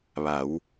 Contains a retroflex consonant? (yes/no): no